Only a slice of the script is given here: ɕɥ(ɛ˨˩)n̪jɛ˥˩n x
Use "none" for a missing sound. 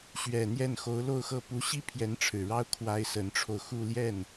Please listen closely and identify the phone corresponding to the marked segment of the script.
ɛ˨˩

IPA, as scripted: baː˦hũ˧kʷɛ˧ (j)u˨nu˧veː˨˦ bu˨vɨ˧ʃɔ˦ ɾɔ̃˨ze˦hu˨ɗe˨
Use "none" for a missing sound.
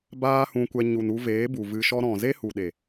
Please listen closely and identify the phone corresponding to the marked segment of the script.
ɲ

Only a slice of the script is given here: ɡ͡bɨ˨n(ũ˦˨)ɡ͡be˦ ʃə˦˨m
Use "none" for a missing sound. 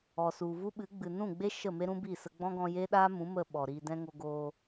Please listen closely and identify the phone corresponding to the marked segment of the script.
ũ˦˨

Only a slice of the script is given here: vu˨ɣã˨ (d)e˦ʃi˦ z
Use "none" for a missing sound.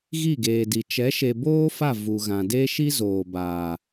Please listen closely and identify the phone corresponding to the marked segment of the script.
d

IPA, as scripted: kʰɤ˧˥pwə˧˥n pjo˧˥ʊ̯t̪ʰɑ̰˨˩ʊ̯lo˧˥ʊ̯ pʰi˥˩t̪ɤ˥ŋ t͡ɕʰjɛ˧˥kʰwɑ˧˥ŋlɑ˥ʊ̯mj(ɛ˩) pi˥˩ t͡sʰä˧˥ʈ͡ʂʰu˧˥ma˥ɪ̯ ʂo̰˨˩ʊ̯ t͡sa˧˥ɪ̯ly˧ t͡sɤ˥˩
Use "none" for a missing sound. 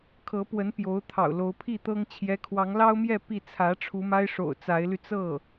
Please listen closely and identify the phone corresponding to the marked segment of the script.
ɛ˥˧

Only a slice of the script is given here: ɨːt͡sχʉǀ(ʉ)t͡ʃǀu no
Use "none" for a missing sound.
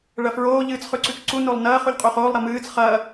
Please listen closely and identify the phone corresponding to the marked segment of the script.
ʉ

